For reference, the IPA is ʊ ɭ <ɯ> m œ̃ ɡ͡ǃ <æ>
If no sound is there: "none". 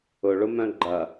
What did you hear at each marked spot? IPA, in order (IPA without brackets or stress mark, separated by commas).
ʊ, ɐ